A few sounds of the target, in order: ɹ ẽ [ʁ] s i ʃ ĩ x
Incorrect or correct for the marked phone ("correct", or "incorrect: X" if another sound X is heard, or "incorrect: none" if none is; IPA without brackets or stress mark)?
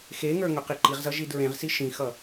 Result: correct